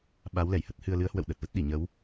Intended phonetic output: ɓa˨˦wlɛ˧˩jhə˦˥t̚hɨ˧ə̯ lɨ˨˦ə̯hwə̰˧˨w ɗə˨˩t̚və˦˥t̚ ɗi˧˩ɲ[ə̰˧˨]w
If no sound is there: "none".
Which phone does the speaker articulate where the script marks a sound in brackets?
ə˨˦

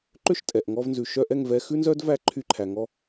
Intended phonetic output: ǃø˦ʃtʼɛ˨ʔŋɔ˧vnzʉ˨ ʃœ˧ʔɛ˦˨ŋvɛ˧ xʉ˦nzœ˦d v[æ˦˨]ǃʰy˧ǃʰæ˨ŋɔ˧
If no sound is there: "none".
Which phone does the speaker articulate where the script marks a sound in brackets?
æ˦˨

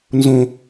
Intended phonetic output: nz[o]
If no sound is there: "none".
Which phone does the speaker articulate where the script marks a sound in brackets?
õ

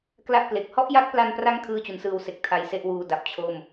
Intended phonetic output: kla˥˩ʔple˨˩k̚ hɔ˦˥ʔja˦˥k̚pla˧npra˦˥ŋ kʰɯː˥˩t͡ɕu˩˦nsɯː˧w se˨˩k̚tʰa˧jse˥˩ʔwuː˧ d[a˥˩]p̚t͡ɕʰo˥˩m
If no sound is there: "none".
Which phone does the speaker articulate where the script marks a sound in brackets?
a˨˩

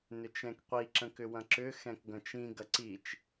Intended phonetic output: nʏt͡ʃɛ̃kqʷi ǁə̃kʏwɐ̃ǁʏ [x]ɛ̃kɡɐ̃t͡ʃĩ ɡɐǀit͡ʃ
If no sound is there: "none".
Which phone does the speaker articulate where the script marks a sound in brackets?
x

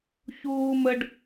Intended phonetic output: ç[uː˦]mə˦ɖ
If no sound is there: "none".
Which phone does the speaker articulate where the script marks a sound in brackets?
uː˦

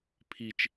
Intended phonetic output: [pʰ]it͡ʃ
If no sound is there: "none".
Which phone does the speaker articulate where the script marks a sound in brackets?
pʰ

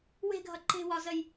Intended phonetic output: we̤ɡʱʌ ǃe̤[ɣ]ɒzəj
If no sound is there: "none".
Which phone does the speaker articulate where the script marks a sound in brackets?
w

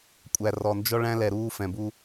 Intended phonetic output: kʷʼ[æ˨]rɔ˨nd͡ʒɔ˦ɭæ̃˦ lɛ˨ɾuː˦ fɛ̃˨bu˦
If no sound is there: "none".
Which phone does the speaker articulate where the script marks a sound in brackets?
æ˨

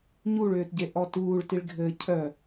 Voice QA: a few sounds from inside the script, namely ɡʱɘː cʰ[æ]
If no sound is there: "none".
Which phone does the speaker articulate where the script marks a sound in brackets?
œ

